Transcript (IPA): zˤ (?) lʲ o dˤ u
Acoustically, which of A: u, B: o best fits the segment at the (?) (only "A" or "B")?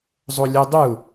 B